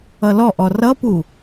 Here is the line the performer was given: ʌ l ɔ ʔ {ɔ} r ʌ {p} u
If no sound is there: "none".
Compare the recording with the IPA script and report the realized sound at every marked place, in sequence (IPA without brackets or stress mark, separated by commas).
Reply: ɔ, p